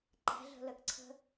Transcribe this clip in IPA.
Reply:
ǃ æ̤ ɮ ə̤ l ə k ǀʰ ə̤

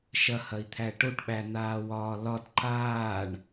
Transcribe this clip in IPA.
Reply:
ʃ ɐ h ɐ i̯ t̪ʰ æ ʈ o ʈ ɓ æ n̪ aː w ɒː l ɒ d ǃ aː ɳ

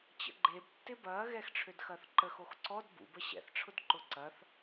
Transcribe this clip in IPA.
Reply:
t͡ɕ ə̰ ɡ͡ǃ e b tː ɪ b ɐː ɣ ɛ x ʈ͡ʂʰ ø d x ɐː θ ǃ ə x o x ǀ ɔ d b ṵ b ə ɕ ɛ̰ θ ʈ͡ʂʰ ʊ d ǃ ʊ ǀ ɐ θ

